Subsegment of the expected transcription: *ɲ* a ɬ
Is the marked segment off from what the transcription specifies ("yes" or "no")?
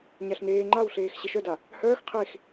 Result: no